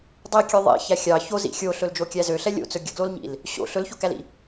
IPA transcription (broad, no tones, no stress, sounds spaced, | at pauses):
dˤ i kʲ ø ðˤ ḭ ç æ xʲ ɑ ç o z ḭ xʲ o ɬ ɵ l d͡ʒ o kʲ æ z ø ɬ ɛ lʲ o̰ t͡s ɵ ɡʲ ɵ ɡ l o l ɲ ḭ l | ɕ o̰ ɬ ɵ l ç o k æ l ḭ